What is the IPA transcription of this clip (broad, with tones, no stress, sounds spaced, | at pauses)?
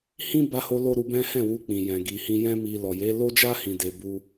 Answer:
h ĩ˦ b a˧ h o˧ l o˦ ɾ u˧ b ɛ̃˦ h ɛ̃˦˨ w u˧ k͡p ĩ˨ j ɛ̃˨ ɡ i˨ h ĩ˧ j ɛ̃˦ m i˧ l ɔ˨ j e˨˦ l o˦ d͡ʒ a˦ h ĩ˧ d e˧ b u˦